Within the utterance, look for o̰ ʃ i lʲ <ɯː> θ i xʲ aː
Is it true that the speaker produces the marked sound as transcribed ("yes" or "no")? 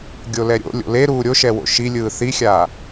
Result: yes